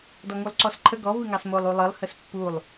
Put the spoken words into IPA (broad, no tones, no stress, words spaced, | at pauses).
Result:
dɔŋulˠǀɔsǃʰə ɡɔ vɨŋɑsmolˠ ulˠɨlˠ həspːulˠ